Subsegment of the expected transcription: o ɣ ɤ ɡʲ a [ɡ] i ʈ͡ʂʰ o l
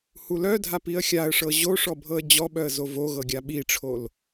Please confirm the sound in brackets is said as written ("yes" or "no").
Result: no